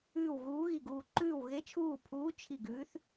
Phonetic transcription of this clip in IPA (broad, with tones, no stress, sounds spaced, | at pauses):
ʉː˦˨ w ɣ uː˧˥ ɣ i˦˨ ɡ uː˦˨ ǃ ʉː˦˨ w ɣ e˧˥ t͡ʃʰ uː˦˨ pʰ uː˧˥ t͡ʃʰ i˦˨ ɡ ʉː˧˥ θ